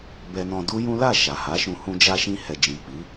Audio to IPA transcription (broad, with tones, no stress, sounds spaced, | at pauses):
b ɛ˧ n ɔ̃˧ d u˦ j ũ˦ l a˦˨ ʃ a˨ h a˨˦ ʃ ũ˧ h ũ˧ d͡ʒ a˧ ʃ ĩ˧ h ɛ˨ d͡ʒ ĩ˨ k͡p i˨˦